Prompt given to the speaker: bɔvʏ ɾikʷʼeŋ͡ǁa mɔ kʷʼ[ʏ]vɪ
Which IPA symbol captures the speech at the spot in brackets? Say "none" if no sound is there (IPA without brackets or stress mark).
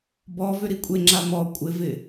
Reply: ɪ